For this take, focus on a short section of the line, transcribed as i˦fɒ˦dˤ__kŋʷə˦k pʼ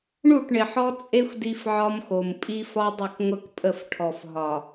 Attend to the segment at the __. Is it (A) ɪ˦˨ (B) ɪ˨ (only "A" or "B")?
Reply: A